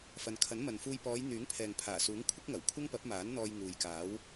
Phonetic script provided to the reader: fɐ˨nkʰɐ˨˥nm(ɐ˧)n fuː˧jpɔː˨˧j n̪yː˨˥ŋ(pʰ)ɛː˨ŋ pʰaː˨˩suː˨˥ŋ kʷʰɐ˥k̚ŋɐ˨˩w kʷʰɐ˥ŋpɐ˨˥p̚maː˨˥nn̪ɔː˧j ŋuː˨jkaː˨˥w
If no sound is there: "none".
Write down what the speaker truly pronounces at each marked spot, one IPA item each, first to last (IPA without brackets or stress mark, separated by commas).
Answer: ɐ˨, pʰ